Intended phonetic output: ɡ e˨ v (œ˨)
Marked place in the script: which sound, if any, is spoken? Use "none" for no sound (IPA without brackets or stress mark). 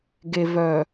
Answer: œ˨